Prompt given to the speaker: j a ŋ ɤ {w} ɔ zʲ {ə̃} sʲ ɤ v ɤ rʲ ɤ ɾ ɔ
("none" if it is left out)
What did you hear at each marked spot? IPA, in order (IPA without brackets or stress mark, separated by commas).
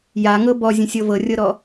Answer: b, ə̃